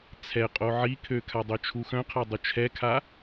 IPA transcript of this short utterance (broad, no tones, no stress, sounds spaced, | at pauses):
t͡sʰ ɛ qʼ o ʕ i kʰ ø kʰ a dˤ ø t͡ʃʰ u x œ̃ qʰ a dˤ u t͡ʃʰ ɛ kʰ a